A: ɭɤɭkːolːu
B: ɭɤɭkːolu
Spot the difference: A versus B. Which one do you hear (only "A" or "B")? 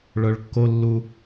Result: A